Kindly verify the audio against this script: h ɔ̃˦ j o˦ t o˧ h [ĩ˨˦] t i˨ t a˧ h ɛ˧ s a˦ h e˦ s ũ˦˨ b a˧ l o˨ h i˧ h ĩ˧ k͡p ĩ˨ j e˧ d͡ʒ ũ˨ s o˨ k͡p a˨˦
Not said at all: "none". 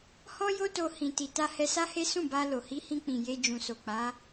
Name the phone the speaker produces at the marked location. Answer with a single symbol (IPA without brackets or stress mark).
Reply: ĩ˨